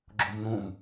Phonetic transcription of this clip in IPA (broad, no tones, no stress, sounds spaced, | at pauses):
ɡ͡ǁ u m n̪ ũ m